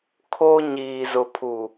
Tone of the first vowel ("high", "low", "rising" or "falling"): high